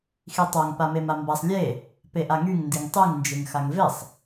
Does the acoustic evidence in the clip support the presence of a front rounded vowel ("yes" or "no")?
yes